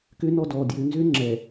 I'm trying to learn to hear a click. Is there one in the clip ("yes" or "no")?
yes